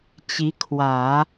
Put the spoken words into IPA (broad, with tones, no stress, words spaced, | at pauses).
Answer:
t͡ɕi˧˥ kʰwä˨˩˦